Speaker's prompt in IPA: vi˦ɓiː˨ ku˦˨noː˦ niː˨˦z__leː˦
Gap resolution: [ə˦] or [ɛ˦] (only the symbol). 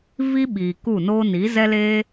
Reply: ɛ˦